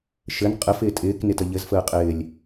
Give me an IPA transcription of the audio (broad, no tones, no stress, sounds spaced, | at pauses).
ʃ ɘ n qʼ ɘ f ɪː tʼ ɪː k n ɪ t ə ʎ ɘ z f əː qʼ ɪː lʲ